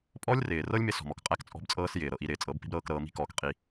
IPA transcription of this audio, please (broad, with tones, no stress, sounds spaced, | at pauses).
pʼ ɔ˦ lʲ r ɪː˨ r ɤ˦ lʲ m ɪ˧ s ɔ̤˨ m ɔ˨ k qʼ æ˦ k t͡sʼ ɔ̤˦ b t͡sʼ ɤː˦ s j ɪː˨ ɾ ɤ˨ ʔ i˧ ɾ ɪː˨ t͡sʼ ɤ˨˦ b p i̤˦ b ɾ ɤː˧ k ɾ ɤː˧ m i̤˦ k ɔː˧ k qʼ i˧